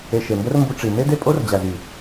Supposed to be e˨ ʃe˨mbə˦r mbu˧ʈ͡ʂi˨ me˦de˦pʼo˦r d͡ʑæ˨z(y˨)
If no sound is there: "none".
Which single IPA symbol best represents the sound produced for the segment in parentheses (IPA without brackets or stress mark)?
y˨